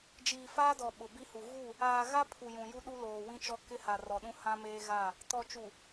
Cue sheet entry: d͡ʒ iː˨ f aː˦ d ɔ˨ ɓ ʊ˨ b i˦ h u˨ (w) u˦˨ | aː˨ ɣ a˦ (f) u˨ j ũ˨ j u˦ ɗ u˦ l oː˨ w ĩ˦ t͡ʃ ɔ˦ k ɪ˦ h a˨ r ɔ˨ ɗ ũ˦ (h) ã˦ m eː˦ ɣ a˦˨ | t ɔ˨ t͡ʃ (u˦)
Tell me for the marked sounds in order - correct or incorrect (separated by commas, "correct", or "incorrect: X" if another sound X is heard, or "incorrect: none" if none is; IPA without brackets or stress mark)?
incorrect: ɣ, incorrect: pʰ, correct, incorrect: u˨